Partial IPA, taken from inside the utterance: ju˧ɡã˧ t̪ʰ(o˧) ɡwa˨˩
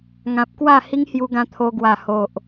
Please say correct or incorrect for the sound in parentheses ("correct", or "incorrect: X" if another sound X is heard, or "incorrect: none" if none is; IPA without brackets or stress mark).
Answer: correct